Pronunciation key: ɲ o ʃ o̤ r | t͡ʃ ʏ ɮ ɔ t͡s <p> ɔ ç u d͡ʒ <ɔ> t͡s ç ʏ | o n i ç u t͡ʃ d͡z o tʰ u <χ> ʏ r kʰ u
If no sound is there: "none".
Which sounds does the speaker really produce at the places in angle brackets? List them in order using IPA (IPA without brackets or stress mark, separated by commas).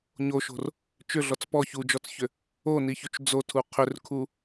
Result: p, ɔ, qʰ